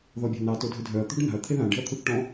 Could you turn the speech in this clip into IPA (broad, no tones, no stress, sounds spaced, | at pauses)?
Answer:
ð ɔ bʲ a̤ n ɑ t o dʱ ʏ dʱ œ ɐ̯ t̪ ṳ ɖ n a̤ ɐ̯ t̪ʰ e ð ã ɖ e̤ ɐ̯ t̪ʰ u θ ʈ ɔ̃